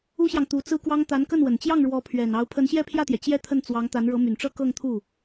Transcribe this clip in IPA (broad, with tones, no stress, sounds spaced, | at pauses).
u˥ ɕ j ɑ˨ ŋ t̪ u˧˥ t͡s ɹ̩˥ k w ɑ˥ ŋ t̪ a˧˥ n k ə˥˩ n w ə˨˩ n t͡ɕ j ɑ˥˩ ŋ ɻ w ɔ˧˥ pʰ ɥ ɛ˨˩ n ɑ˧˥ ʊ̯ pʰ ə˧˥ n ɕ j ɛ˥˧ pʰ j ä˥˩ t̪ j ɛ˩ t͡ɕ j ɛ˥˧ t̪ʰ ə˥˩ n t͡s w ɑ˧˥ ŋ t̪ a˧˥ n ɻ ɤ˧˥ m y˨˩ n ʈ͡ʂ ɤ˥ k ɤ˥˧ ŋ t̪ʰ u˥˩